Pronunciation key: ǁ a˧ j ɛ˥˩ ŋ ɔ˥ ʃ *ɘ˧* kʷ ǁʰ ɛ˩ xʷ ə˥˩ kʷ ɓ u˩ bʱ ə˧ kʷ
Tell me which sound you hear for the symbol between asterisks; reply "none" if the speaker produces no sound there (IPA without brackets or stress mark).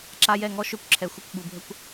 ø˧